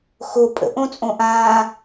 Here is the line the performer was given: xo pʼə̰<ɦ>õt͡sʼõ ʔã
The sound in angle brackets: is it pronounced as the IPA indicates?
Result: no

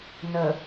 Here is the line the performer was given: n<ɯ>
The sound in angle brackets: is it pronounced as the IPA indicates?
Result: no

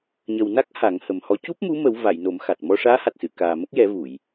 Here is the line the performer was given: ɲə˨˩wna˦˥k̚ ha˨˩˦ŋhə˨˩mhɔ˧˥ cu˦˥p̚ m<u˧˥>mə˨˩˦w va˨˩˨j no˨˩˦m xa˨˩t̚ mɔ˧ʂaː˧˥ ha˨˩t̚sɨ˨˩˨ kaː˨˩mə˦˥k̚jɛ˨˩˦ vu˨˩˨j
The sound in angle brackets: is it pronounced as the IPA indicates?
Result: yes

